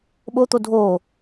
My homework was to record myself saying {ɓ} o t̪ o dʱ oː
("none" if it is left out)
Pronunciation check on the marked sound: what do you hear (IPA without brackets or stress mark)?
ɓ